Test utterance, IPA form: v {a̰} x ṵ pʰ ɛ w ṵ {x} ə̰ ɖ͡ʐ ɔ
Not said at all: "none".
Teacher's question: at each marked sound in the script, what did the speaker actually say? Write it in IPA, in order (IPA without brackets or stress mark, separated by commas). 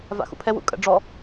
a̰, kʼ